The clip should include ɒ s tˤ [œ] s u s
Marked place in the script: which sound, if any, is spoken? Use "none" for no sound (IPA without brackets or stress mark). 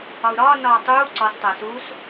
æ